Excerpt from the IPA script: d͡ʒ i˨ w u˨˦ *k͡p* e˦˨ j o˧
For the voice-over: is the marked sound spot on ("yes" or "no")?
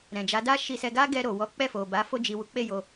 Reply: yes